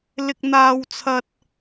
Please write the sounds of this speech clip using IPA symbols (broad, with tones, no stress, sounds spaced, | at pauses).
l ɪ˥ k̚ n̪ aː˥ w t͡sʰ ɐ˥ t̚